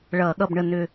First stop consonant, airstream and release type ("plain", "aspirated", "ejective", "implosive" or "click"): implosive